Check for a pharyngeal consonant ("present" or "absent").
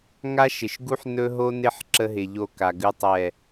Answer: present